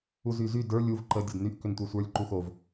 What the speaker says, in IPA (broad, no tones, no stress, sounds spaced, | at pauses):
u z y z y d ə˞ lʲ u v ǃ ə dʲ o d n y ʔ k ʏ n tʷ ə˞ sʷ ə˞ lʲ ǃ u x o v